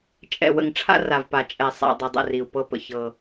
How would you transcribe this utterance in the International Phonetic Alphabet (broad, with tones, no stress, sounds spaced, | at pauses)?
t͡ʃʼ ɛ̰˨ w ə̰˨ ŋ ʈ͡ʂʰ a̰˦ r a˨ v p a˨ t͡ʃʼ ɛ˨ sˤ a̰˨ dˤ i˨ dˤ ə̰˦˨ r i˨ u̯ p ɤ˦ p ə̰˨ ç ɤ˦